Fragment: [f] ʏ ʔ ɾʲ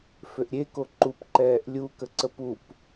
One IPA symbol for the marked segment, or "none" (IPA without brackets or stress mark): f